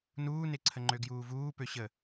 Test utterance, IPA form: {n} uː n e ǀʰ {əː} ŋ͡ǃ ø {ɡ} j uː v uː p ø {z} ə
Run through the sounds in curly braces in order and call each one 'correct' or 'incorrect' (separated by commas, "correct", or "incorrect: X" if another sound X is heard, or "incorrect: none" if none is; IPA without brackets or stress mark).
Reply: correct, incorrect: ə, correct, incorrect: ɕ